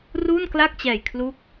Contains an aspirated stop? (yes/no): yes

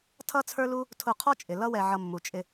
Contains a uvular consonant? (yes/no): yes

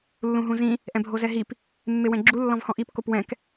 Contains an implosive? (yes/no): no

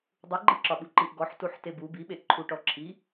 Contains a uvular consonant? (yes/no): no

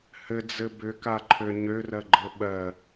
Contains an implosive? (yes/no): yes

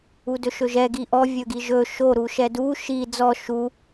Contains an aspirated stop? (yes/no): no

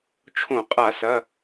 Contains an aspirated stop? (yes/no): yes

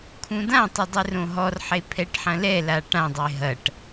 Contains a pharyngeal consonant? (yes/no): yes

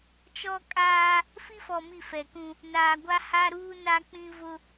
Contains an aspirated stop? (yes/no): no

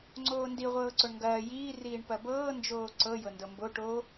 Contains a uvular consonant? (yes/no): yes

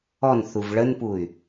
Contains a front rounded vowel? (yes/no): yes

